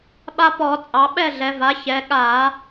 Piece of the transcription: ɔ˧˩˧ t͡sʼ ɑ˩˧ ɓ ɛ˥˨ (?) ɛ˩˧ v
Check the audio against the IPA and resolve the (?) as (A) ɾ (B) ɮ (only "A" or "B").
B